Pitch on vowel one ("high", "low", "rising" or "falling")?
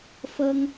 high